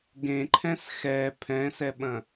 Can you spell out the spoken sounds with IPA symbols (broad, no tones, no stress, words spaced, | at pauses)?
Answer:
ɡẽǃʰɛ̃s xɛ pʰɛ̃sɛɓɐ̃